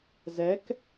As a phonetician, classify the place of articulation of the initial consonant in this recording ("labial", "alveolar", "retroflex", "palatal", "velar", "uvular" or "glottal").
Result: alveolar